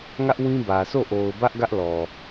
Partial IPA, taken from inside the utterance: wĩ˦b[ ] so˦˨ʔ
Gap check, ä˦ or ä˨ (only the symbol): ä˨